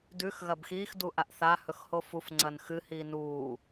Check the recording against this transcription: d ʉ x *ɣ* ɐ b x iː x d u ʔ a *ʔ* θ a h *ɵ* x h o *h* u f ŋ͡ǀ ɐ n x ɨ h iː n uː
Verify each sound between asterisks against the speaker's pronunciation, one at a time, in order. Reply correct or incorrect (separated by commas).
correct, correct, correct, incorrect